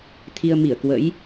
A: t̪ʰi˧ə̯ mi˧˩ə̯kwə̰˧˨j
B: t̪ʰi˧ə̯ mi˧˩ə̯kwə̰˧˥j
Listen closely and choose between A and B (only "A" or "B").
B